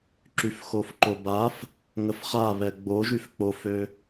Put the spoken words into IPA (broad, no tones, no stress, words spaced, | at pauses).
ǁyfxofǃobaf | ŋəfχaβɛ ɡ͡boʒyf k͡pofø